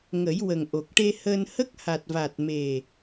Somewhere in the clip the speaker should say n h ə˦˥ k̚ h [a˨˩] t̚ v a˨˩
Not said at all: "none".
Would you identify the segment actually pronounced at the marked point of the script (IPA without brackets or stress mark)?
a˨˩